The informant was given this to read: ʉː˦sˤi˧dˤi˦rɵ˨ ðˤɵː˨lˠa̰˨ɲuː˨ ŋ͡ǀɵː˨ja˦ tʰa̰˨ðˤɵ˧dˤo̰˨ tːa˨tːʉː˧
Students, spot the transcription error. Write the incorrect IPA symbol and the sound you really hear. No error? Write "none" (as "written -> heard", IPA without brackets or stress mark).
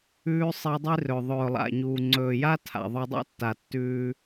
o̰˨ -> o̰˦